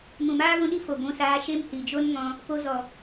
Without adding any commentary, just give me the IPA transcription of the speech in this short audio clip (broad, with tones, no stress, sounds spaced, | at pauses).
m ũ˨ m aː˦ v ũ˧ ɗ i˦ f o˨ ɡʷ ũ˧ s aː˧ ʃ e˦ m h i˨ d͡ʒ o˦ n ŋ ɔ̃˧ | p o˧ z ɔ˨